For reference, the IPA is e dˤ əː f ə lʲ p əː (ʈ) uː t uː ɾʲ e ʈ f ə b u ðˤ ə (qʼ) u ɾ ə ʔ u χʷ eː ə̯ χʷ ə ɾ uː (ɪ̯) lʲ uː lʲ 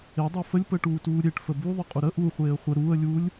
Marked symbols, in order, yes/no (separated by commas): yes, yes, no